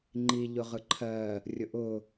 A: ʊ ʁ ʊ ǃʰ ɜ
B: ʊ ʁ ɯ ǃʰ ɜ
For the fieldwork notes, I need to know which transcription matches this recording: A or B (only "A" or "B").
B